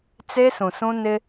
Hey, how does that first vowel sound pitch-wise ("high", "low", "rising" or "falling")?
high